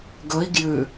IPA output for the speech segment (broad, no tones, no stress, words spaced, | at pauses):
ɡɵi̯ ɡjʉ